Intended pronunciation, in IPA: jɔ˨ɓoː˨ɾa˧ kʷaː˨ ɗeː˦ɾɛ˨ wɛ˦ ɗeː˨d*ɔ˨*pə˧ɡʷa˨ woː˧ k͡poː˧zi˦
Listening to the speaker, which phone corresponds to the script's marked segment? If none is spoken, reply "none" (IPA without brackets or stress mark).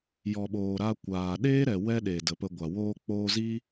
ə˨